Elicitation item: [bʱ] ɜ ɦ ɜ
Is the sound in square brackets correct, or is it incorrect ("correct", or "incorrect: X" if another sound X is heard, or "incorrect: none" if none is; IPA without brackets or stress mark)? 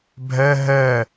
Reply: correct